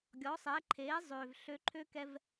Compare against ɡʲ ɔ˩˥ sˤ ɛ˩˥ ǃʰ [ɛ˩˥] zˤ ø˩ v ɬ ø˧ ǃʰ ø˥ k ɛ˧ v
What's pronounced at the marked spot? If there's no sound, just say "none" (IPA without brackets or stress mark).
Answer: e˩˥